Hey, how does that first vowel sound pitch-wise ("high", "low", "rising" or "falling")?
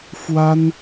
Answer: high